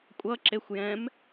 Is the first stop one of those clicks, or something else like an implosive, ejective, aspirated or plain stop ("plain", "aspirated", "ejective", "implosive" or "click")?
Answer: ejective